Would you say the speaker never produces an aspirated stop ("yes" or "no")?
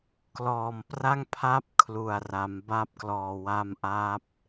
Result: no